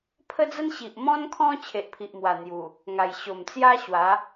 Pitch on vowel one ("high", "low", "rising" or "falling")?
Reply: high